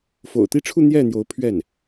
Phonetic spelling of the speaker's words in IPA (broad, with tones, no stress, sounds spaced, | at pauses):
f o̰˨˩ ʊ̯ t̪ i˥˧ ʈ͡ʂʰ u˥˧ n̪ j ɛ˥˩ n̪ j o˧˥ ʊ̯ pʰ ɥ ɛ˥˩ n